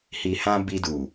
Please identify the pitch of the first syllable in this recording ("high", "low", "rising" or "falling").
low